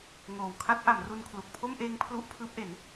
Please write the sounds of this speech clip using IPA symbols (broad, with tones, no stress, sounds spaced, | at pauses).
ŋ oː˨˩ w kʰ a˦˥ t̚ ʔ a˩˦ m r u˧ n kʰ l u˨˩ k̚ pʰ o˥˩ m ʔ eː˦˥ ŋ pʰ l u˦˥ ʔ pʰ ɯː˦˥ p̚ ʔ e˩˦ n